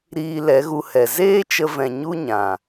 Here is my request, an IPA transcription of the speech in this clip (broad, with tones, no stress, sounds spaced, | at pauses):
ɾ iː˧ l ɛ˨˦ ɣ u˧ h ɛ˨ z eː˦ t͡ʃ ə˧ v ɛ̃˨ ɲ u˦ ɲ ã˨